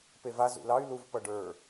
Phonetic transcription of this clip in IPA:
p e v a z ṵ l ɑ y̯ l u v p ʌ ɖ ə˞

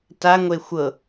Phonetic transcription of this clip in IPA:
t a ŋʷ e xʷ ɤ

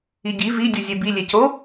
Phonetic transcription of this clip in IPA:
i ɟ i v i dʲ u zʲ e b i lʲ e c o

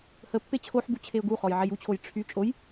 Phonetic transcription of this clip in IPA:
h ə pː e t͡ɕʰ o ħ b u t͡ɕʰ e ʊ̯ ɡ u χ ɔ j ʕ e j u t͡ɕʰ o j ʈ͡ʂʰ y t͡ʃʼ o j

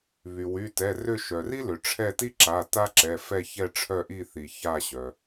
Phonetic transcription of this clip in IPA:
β y˩ w y˩˧˩ t ɛ˩˧˩ r ʏ˦˨ ʃ œ˩ r i˥ l ʏ˩ ʈ͡ʂʰ ɛ˦˨ t i˥ ǁ a˩˧˩ t a˥ ǁ ɛ˩˧˩ f ɛ˦˨ ç ɛ˦˨ ʈ͡ʂʰ œ˦˨ ʔ i˦˨ θ i˩ ç a˦˨ ɕ œ˩

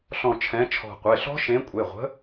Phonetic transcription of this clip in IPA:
ɬ ɔ̃˧˩ t͡ʃʰ ɛ̃˨˥ t͡ʃʰ ɔ̤˧˩ qʷ e˩˧˩ ɬ ɔ̤˦˥ ʃ ẽ˨˥ kʷʼ e˩˧˩ ʁʷ ə̤˨˥

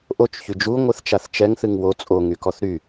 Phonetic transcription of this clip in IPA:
ʔ o t͡ʃ ç y d͡ʒ u ŋʷ ɨ θ t͡ʃ a θ t͡ʃ ɛ ŋ θ ɨ ŋ w o t͡sʼ o ŋ y k ɔ θ ɾ y

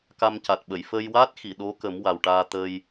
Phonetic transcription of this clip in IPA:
k a˧ m c a˨˩ t̚ ɓ ə˨˩˨ j f ə˧ j w a˦˥ t̚ x i˨˩˨ ɗ o˧˥ k ə˨˩˦ m w a˨˩ w ʈ aː˧ t̪ ə˧ j

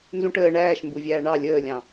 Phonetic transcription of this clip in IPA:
n z ũ ʈ əː ɳ æː ʃ m b u vʲ æː ɳ ɑ lʲ əː lʲ ɑ̃

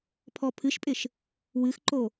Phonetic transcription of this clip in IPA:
pʰ ɔ pʰ ɨ ʃ pʼ ɪ ʃ | w ɨ x ǃ o

